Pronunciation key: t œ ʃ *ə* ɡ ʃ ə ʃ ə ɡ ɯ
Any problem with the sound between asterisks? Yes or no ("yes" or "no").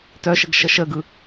no